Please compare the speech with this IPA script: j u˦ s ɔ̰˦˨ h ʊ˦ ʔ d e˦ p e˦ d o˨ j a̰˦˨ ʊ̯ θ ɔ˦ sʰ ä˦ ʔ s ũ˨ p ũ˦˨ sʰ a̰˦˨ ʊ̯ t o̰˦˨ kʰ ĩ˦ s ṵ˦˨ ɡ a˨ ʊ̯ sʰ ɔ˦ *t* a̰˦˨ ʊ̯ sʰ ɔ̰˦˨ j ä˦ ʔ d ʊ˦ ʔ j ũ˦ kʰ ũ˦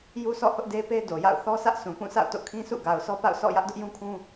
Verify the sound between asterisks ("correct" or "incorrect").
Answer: incorrect